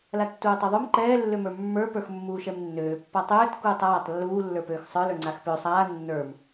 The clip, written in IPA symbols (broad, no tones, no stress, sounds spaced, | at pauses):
l a tː uː tˤ ø ðˤ u m ǃ ɛː lː ø m ə˞ mː ə˞ p ə˞ x mː uː ʃ ɛ m nː øː pː a tˤ øː t k uː tˤ aː tˤ lː uː lː ə˞ p øː x sˤ ə˞ l ə˞ ŋ͡ǀ a x p ø sˤ aː nː ə˞ m